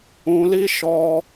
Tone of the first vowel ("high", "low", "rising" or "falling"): low